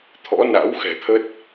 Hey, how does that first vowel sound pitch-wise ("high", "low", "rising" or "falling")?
rising